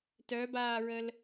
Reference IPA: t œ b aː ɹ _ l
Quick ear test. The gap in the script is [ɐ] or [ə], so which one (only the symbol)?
ə